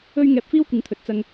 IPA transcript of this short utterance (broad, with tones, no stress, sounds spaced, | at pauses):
ɵ˧ ɥ ŋ ɛː˧ p̚ f iː˥ w kʷ ɪ˨˥ ŋ t̪ʰ ɵ˨ t̚ t͡s ɐ˧ ŋ